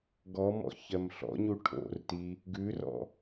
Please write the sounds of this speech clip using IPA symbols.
ɡ ɔ m ɔ̰ ç ɜ m ɬ ɔ̰ ɲ u ʈʰ o̰ r t i | ɡ ʉ r ɔ̰

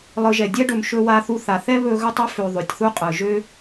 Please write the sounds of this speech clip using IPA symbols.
lˠ ɯ˨ ʒ ɛ˩ dʲ ɛ˦ ɖ ɵ˨ m ʃ ɵ˨ w a˨ θ u˨ θ a˩ θ ɛ˦ β ɵ˦ ɣ ɵ˦ tˤ ø˥ f ø˨ ðˤ ø˩ tʲ θ u˦ qʼ ɯ˩ ʒ ø˥

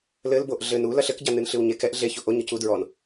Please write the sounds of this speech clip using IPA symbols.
l ɘ l b o ʔ ɮ ɘ n u l ɐ ɬ ɘ k ɟ a n ɨ n ɬ ɨ w ɲ e k ɛ ʔ ɮ e ç o ʔ o ɲ ɨ c u d ɹ ɔ n

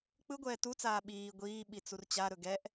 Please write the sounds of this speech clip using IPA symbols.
k͡p ɯ ɡʷ ɛː t u t͡s aː ɓ iː ɡʷ iː ɓ i t͡s u r t͡ɕ a ɾ ɵ ɡ ɛ ʔ

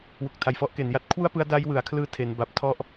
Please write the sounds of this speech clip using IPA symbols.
w u˨˩ k̚ tʰ a˨˩ j f ɔ˦˥ ʔ k e˩˦ n j a˦˥ t̚ kʰ w u˥˩ a̯ p ɯ˦˥ a̯ d a˦˥ j w ɯ˩˦ a̯ kʰ l ɯː˦˥ tʰ e˦˥ n b a˦˥ p̚ tʰ ɔ˥˩ ʔ

